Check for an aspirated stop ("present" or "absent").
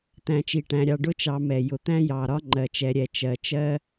absent